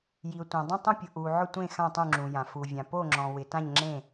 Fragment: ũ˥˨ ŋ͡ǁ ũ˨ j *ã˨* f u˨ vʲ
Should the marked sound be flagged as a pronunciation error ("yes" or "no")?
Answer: no